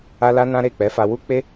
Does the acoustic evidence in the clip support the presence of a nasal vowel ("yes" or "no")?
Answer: yes